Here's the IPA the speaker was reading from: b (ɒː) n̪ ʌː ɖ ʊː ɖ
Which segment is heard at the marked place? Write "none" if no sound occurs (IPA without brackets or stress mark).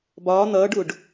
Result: ɒː